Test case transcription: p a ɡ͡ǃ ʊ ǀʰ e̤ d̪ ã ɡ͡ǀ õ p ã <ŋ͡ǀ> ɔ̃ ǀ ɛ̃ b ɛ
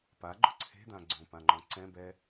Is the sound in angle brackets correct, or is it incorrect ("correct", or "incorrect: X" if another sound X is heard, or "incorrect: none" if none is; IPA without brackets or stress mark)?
incorrect: ŋ͡ǃ